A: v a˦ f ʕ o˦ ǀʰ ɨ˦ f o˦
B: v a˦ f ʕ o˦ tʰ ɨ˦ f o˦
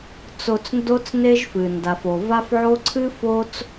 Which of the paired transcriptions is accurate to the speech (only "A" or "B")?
A